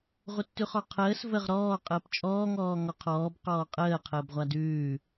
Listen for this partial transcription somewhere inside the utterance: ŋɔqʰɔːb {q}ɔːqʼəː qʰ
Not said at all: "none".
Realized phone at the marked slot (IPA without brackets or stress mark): q